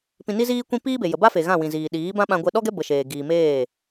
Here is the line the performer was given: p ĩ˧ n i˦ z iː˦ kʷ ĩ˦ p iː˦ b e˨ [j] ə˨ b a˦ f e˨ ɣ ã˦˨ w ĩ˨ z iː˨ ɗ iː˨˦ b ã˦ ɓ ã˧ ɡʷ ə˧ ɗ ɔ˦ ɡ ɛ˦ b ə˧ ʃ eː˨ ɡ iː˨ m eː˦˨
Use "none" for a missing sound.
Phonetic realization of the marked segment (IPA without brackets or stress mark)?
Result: j